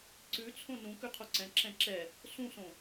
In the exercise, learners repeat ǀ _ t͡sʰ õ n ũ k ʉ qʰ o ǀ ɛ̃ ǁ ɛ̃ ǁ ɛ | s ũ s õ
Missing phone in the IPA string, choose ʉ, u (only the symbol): ʉ